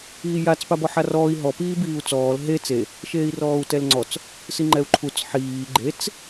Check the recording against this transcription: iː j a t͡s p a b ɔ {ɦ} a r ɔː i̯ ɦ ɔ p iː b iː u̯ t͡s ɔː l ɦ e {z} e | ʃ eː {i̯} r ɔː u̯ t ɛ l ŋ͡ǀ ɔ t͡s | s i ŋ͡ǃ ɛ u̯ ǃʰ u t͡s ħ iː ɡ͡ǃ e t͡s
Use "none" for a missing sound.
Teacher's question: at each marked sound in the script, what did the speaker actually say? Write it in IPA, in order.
ħ, t͡s, i̯

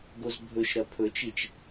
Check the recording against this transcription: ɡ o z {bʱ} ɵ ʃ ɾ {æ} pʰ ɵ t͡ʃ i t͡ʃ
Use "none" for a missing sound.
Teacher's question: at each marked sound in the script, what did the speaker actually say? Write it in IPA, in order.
bʱ, ɐ

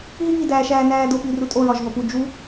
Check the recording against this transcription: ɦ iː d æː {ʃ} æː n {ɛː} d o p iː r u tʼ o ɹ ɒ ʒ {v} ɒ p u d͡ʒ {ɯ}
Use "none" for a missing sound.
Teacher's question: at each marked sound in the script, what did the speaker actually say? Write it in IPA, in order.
ʃ, æː, v, u

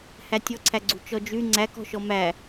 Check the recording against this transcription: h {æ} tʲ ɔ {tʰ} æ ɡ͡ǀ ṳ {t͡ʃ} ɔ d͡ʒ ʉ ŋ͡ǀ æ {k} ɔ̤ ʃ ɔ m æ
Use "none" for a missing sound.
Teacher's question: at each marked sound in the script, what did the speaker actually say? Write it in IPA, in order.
æ, ǀʰ, t͡ʃ, k

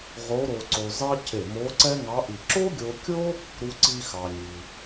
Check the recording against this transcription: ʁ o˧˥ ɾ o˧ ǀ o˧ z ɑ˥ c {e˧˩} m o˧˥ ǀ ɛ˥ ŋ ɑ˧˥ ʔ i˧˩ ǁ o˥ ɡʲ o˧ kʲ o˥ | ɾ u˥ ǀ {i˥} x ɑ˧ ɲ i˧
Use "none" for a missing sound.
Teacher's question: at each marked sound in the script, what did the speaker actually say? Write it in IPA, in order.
e˧˩, i˥

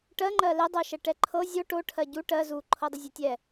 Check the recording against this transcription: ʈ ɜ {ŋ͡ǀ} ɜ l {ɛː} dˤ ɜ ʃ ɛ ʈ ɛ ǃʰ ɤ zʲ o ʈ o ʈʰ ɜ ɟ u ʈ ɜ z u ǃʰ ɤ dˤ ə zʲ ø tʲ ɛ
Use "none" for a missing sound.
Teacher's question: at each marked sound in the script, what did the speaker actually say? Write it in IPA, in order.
ŋ͡ǃ, ɛ

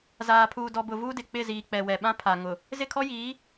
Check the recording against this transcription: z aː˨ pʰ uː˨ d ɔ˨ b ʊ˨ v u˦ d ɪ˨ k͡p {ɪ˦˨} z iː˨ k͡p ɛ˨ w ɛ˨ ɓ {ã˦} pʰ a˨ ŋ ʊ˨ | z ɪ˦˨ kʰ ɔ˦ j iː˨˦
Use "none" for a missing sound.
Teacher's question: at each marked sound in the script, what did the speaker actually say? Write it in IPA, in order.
ɪ˦˨, ã˦

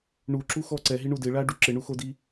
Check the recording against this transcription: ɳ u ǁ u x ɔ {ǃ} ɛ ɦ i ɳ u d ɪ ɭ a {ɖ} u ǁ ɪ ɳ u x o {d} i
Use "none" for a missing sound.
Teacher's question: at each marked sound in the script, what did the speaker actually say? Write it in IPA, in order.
ǀ, ɖ, d

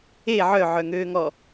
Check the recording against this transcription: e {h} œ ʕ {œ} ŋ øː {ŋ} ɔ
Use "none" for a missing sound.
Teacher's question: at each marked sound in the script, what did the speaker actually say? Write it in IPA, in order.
ʕ, œ, ŋ

